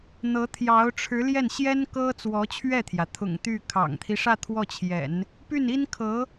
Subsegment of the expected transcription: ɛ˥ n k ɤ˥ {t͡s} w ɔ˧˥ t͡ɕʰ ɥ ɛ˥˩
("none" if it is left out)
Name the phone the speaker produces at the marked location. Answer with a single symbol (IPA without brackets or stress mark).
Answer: t͡s